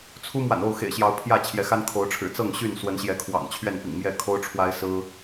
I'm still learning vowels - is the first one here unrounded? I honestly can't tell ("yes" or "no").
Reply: no